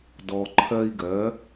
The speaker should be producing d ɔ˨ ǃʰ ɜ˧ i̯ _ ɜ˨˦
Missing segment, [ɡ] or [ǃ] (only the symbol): ɡ